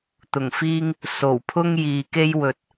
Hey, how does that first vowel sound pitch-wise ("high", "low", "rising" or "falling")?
low